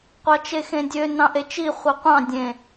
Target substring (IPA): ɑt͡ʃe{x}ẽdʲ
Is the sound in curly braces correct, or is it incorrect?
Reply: correct